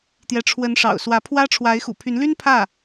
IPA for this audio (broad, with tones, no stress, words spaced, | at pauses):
t̪jɛ˧˥ ʈ͡ʂʰwə˧˥nʂɑ̰˨˩ʊ̯ swä˧˥pʰwä˥ ʈ͡ʂʰwa˧˥ɪ̯xṵ˨˩pʰy˧˥nly˥n pʰä˥˩